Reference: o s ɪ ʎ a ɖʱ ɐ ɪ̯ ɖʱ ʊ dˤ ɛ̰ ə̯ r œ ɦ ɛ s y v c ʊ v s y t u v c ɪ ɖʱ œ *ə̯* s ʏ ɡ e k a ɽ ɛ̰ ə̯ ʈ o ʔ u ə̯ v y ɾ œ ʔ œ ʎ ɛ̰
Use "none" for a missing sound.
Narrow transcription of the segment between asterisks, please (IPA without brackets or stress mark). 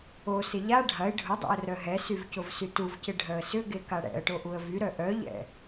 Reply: ə̯